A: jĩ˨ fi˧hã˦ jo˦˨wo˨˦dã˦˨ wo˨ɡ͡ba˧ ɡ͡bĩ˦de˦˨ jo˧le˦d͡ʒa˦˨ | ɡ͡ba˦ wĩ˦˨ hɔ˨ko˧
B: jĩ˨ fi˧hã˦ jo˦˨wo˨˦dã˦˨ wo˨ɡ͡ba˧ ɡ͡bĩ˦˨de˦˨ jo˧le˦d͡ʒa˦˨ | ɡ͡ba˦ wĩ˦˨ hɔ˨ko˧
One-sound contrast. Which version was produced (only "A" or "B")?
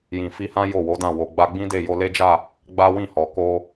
A